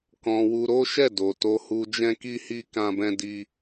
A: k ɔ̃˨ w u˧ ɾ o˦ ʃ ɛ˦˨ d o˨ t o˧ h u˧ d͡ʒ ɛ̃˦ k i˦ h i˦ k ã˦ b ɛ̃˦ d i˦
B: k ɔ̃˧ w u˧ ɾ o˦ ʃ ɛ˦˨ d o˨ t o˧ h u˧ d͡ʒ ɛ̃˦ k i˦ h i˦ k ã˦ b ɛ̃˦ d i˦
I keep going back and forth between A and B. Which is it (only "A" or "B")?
B